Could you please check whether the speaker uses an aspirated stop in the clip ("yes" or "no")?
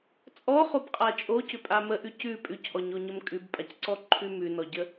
yes